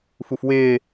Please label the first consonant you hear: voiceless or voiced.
voiceless